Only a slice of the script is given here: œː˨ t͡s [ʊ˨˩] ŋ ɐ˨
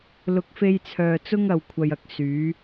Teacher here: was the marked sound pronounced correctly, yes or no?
no